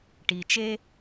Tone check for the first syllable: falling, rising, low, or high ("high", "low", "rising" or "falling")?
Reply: low